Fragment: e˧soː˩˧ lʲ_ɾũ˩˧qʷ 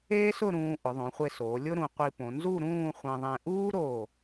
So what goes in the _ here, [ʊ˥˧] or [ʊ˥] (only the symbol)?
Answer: ʊ˥